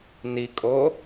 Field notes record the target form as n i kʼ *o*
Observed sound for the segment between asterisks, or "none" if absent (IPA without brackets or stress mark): o